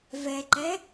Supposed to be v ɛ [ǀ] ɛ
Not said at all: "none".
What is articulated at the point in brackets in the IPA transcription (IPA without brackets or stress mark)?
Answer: ǃ